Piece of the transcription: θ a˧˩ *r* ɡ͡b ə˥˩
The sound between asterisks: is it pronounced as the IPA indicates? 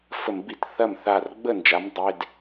yes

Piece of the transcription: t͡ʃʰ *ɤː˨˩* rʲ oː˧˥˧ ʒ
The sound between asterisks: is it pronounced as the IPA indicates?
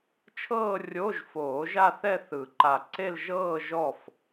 no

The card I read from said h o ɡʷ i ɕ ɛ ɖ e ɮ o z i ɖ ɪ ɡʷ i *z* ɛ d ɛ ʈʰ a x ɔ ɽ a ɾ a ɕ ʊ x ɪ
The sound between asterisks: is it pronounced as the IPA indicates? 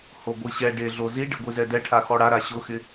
yes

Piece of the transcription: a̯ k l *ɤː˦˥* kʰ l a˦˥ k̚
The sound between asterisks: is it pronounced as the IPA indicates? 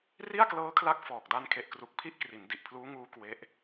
yes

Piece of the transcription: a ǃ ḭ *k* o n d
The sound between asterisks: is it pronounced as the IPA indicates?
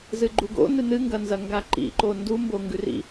no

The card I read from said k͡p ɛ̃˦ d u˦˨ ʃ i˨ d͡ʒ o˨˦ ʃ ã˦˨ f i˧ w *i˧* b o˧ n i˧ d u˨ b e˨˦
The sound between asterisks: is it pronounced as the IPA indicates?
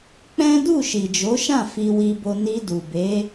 yes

